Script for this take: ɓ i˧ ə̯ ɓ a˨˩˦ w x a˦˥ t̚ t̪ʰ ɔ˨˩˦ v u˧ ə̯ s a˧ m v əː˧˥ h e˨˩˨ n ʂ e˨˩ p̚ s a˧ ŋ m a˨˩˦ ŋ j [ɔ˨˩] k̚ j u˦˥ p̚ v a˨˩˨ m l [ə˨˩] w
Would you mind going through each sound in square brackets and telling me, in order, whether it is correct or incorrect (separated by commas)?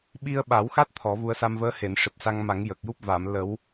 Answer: incorrect, incorrect